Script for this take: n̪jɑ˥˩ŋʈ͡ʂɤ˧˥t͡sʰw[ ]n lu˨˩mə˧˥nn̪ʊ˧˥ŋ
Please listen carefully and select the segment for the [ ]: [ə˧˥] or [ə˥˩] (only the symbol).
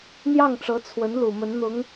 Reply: ə˧˥